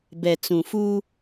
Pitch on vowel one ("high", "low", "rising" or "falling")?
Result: low